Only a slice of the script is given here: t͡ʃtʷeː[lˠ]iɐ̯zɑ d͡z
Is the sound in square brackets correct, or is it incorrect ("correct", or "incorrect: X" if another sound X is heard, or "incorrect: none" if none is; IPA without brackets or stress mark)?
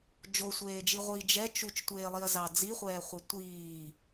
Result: correct